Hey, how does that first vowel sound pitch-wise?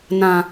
low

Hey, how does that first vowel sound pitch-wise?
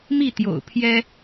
falling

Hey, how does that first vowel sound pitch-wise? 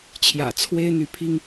low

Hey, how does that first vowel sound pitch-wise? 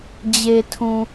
low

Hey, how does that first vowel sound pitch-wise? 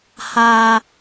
low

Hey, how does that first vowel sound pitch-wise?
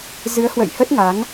rising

